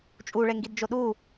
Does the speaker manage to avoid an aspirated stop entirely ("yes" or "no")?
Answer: yes